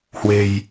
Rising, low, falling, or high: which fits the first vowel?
low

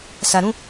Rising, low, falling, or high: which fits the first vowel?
low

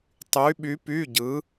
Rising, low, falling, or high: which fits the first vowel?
rising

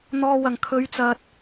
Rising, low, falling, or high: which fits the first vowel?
low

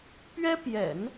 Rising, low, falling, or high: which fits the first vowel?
high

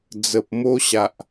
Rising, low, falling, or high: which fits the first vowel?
low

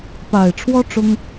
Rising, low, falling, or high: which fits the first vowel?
low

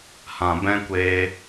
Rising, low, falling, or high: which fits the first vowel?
low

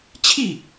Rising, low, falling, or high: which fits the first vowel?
falling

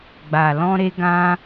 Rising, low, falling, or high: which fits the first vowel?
low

